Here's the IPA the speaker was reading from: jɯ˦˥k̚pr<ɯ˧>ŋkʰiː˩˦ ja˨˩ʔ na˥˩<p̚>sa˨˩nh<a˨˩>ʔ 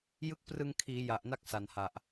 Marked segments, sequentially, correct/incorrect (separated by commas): correct, incorrect, correct